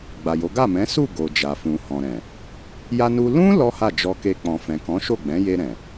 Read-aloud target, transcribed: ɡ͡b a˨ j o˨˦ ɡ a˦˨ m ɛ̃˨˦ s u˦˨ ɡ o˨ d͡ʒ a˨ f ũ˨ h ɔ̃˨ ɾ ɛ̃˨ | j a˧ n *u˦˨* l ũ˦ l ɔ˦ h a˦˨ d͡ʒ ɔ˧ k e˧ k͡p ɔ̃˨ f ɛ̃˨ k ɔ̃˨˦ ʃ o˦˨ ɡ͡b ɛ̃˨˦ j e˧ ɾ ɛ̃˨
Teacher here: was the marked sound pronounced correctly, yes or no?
no